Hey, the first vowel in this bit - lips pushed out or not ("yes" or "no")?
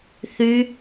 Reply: yes